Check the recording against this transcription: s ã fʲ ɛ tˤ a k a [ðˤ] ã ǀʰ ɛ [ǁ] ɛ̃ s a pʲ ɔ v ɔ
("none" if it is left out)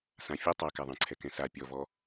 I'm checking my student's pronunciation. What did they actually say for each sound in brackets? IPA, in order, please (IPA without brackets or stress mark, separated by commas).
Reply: ðˤ, k